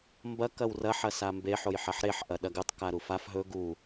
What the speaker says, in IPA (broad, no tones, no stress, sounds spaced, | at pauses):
m b ɐ k ɐ w r ɐ ħ ɐ s a m b e ħ o j ħ ɐ ħ ɾ e ħ ʔ ɐ ɗ ɐ ɡ ɨ tˤ k a ɾ u f a f ɦ ɵ ɡ u